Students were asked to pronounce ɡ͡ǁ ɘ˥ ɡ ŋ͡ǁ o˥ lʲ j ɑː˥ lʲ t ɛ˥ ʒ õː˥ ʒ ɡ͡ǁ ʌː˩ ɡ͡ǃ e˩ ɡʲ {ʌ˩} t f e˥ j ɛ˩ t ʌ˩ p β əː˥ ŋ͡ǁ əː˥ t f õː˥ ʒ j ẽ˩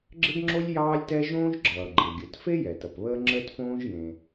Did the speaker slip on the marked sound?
no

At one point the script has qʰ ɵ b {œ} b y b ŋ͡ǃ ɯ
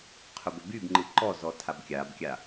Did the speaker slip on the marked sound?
yes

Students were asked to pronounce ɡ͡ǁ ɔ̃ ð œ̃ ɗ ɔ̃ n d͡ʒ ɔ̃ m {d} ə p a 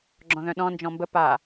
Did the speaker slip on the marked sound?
yes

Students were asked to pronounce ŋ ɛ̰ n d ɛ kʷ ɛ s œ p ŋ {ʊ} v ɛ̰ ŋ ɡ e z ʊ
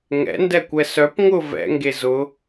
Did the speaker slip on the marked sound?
no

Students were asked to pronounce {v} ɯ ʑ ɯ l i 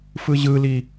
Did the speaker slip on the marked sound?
yes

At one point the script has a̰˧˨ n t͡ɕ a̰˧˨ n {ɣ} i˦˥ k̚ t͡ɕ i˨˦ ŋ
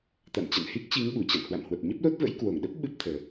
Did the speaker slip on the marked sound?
yes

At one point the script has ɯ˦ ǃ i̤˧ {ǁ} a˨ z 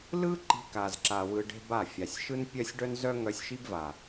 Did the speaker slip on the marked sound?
yes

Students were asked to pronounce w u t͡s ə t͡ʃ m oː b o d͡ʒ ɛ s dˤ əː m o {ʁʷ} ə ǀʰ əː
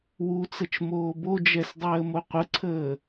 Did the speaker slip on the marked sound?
yes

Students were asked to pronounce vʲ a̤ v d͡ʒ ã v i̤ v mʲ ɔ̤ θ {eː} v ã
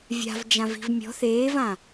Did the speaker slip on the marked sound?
no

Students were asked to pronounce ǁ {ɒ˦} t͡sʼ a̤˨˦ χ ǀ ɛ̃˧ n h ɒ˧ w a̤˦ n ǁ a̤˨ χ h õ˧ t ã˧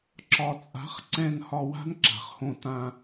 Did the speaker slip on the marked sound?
yes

